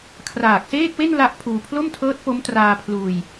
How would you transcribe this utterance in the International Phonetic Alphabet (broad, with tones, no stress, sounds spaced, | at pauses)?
kʰ r aː˨˩ k̚ s eː˥˩ k̚ w e˥˩ n l a˥˩ ʔ pʰ uː˧ pʰ l o˥˩ m tʰ ɤː˦˥ t̚ p o˦˥ m t r aː˧ pʰ l uː˧ j